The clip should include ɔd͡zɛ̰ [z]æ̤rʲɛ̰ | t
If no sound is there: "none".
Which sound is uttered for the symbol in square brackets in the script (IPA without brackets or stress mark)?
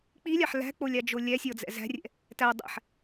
z